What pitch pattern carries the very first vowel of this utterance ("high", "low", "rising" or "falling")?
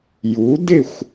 rising